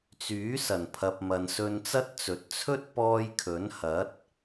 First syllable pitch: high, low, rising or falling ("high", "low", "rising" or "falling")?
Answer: rising